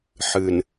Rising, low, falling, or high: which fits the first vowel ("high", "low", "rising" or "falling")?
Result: low